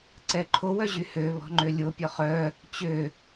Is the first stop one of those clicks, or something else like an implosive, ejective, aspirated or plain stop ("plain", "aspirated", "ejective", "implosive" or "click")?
click